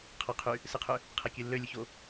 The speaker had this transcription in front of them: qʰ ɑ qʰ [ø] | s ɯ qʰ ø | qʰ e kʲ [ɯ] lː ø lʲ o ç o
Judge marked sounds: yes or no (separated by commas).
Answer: no, yes